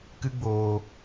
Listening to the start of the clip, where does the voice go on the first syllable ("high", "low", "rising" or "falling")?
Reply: high